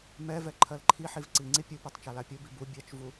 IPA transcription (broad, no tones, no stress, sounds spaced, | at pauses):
m ɛ v ɛ ǃʰ ɜ l ǃʰ i ħ i v ǀ i ŋ͡ǀ i pʲ u p ɜ tˤ t͡ʃ a l a pʲ u b i b u bʲ ɜ t͡ʃ v u